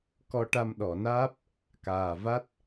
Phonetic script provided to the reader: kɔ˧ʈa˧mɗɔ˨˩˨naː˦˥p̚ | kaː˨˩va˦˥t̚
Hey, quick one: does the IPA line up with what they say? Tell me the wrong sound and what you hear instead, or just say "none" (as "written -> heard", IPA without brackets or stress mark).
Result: none